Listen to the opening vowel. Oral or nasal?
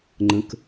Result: nasal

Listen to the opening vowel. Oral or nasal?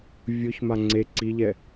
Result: oral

